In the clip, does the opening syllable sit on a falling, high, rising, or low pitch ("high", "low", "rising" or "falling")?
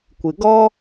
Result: low